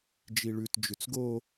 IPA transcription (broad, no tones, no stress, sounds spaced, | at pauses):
d͡ʒ i ɭ ʉ t d͡ʒ ʉ t͡s ɡ o